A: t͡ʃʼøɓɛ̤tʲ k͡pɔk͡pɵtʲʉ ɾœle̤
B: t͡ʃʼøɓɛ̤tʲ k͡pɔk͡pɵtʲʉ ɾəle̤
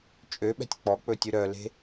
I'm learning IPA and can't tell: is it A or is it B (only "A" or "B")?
A